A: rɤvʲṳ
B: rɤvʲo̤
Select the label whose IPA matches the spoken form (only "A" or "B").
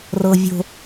B